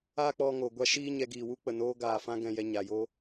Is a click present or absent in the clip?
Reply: absent